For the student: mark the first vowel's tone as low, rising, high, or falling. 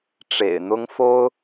low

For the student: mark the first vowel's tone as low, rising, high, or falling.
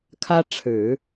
high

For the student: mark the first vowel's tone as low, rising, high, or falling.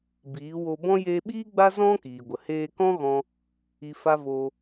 rising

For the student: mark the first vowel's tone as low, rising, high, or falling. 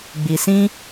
low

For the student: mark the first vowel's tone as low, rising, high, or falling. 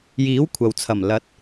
rising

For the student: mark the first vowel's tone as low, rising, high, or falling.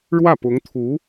falling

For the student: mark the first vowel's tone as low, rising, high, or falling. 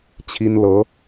high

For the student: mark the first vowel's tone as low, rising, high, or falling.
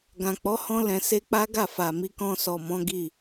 low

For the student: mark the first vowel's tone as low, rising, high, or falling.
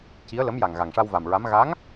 rising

